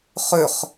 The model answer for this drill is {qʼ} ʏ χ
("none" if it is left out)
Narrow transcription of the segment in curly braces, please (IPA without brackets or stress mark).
χ